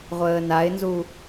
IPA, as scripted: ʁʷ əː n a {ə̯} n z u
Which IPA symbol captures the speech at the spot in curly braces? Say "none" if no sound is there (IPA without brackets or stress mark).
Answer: ɪ̯